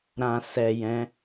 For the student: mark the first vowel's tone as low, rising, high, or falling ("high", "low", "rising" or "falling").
low